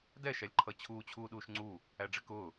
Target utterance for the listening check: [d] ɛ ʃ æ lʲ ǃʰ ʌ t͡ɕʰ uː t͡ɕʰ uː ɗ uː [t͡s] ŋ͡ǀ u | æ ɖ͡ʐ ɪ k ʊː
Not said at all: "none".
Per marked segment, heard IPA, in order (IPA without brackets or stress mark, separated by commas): d, ʃ